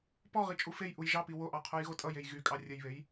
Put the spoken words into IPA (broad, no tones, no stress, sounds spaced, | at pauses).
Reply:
p ɔ ʁ i t͡ʃʼ u f e j ʔ u j ʒ ɑ p i w o ʔ ɑ qʰ o j ɣ o tʼ ʌ j e j ɣ y kʼ ɑ rʲ ə j β e j